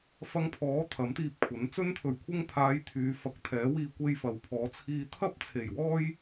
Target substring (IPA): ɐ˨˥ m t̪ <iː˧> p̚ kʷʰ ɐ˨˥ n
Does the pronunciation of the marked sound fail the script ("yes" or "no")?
no